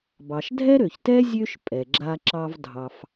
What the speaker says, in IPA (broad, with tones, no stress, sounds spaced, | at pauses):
b ɑ˩ ʃ dʱ ɛ˥ ɾ ø˩ ç t ɛ˥ zʲ ø˥ ʃ pʼ ɛ˩ ɡ͡ǁ a˧ ǁ ɑ˧ v dʱ ɑ˧ f